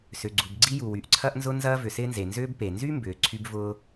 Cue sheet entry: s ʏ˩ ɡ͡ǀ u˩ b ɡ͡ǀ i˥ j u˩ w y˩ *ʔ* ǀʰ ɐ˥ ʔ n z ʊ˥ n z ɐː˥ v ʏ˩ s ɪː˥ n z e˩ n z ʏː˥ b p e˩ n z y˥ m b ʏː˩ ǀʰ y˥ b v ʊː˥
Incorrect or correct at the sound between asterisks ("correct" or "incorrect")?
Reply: correct